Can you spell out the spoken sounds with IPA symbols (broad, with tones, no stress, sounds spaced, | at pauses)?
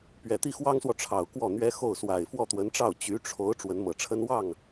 p ɥ ɛ˨˩ t̪ i˥˩ x w ɑ˥ ŋ s w ɔ˨ ʈ͡ʂʰ ɑ˨˩ ʊ̯ k w ɔ˥˩ n̪ ɥ ɛ˥ x o˥˩ ʊ̯ s w a˨˩ ɪ̯ f w ɔ˥˩ t̪ w ə˧˥ n ʈ͡ʂ ɑ˥˩ ʊ̯ t͡ɕ y˧˥ ʈ͡ʂʰ o˧˥ ʊ̯ ʈ͡ʂ w ə˧˥ n m ɤ˨˩ ʈ͡ʂʰ ə˥ n w ɑ˥˩ ŋ